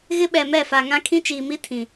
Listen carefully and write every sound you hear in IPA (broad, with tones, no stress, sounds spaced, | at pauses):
ɣ ɪ˦ ɓ ɛ˨ m ɛ˦˨ f a˨ ŋ ã˦ kʰ ĩ˦ t͡ʃ iː˨ m i˦ tʰ ĩ˨